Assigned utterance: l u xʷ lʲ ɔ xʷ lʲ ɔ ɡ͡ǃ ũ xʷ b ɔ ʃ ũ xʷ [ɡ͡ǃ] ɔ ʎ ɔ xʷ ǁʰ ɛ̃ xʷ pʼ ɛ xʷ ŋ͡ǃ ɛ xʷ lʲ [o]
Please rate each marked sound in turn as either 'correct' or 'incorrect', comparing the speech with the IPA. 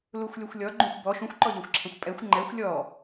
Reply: incorrect: ǃ, incorrect: ɔ

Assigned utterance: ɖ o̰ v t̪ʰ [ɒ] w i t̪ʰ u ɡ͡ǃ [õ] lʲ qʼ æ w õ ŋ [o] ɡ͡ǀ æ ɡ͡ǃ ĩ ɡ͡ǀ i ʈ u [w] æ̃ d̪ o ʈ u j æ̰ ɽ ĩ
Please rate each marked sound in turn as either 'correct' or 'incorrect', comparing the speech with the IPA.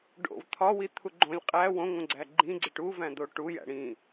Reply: correct, correct, incorrect: õ, incorrect: v

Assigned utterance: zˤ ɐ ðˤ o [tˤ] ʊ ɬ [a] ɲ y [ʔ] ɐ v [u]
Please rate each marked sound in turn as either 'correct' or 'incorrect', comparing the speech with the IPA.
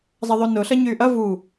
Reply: incorrect: n, incorrect: ɐ, correct, correct

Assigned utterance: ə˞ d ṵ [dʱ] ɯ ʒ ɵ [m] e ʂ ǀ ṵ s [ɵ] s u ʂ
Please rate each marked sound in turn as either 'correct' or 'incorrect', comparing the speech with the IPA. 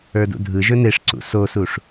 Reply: correct, incorrect: n, incorrect: o

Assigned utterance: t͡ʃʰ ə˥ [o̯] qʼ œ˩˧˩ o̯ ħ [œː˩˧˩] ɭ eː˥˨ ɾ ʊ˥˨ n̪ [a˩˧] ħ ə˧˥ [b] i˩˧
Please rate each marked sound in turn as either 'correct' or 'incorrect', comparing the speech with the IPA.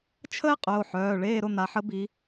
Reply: incorrect: e̯, correct, correct, correct

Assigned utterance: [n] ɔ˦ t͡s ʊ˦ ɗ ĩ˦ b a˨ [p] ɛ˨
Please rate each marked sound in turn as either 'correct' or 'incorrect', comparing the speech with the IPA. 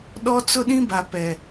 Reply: incorrect: ɗ, correct

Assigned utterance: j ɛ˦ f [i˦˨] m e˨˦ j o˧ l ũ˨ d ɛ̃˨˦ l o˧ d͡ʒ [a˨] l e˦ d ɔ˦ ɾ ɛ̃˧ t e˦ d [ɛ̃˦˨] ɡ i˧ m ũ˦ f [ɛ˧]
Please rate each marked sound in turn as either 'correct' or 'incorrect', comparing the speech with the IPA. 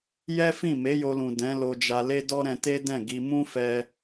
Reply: incorrect: ĩ˦˨, incorrect: a˧, correct, correct

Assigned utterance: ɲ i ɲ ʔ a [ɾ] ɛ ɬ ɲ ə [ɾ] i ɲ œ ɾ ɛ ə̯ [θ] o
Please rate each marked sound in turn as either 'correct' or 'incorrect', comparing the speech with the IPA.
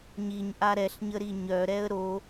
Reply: correct, correct, incorrect: ɾ

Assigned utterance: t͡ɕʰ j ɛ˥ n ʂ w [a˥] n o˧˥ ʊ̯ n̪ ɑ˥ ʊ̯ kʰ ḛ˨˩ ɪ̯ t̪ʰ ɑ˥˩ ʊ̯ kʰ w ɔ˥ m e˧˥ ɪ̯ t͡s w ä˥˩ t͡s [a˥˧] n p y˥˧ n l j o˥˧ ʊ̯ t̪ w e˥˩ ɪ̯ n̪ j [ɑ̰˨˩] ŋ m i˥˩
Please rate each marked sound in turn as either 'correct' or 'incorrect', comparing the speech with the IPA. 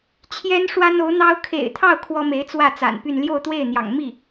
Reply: correct, incorrect: a̰˨˩, correct

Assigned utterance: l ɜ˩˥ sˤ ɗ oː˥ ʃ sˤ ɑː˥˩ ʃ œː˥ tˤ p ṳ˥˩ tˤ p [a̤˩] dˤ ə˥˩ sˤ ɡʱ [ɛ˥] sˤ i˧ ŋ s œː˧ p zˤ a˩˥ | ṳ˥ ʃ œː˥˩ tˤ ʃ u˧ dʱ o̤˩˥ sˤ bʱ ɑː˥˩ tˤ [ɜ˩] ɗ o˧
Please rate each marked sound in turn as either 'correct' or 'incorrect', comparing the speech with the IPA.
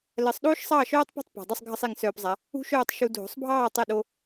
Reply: correct, incorrect: ə˥, incorrect: ɜ˥˩

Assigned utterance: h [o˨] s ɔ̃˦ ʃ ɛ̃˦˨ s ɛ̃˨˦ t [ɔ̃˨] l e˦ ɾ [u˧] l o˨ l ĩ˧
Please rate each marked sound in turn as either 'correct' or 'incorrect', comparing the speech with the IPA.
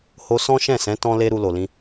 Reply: incorrect: o˧, incorrect: ɔ̃˦, correct

